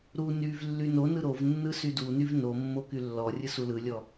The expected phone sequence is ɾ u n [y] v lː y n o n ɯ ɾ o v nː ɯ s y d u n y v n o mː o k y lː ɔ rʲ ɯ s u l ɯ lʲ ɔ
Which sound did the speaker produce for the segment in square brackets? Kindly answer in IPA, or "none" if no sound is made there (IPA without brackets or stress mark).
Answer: y